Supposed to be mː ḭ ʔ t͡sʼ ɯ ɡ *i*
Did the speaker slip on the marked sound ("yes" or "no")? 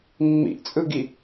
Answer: no